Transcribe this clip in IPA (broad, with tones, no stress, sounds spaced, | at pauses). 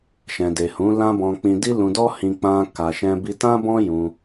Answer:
ʃ ɛ̃˨ d e˨ h ũ˨˦ l ã˦ b ɔ̃˧ k͡p ĩ˧ d i˦ l ũ˧ d ɔ˦ h ĩ˧ k͡p ã˧ k a˧ ʃ ɛ̃˧ b i˧ t ã˦ b ɔ̃˦ j ũ˧